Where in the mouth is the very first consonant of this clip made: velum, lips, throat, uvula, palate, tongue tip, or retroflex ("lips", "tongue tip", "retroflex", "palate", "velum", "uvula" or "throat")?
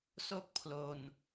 tongue tip